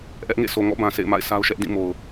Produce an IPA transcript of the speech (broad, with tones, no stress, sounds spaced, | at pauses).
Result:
ʔ ɛ˦ ʔ ŋ ḛ˦˨ sʰ o˨ ŋ ɔ̰˦˨ b ã˨ s ḛ˦˨ ɪ̯ m a̰˦˨ ɪ̯ sʰ a˦ ʊ̯ ʃ ɛ˦ ʔ d ĩ˦˨ m o˨ ʊ̯